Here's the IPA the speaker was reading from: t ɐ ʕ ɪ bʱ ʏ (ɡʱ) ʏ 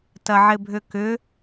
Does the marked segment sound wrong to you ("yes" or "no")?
yes